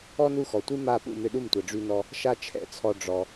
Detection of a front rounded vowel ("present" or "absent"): present